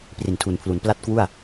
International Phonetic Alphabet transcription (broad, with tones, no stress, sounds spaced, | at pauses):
p r i˨˩ n tʰ u˨˩ n pʰ l u˩˦ n p l a˥˩ t̚ k w u˥˩ a̯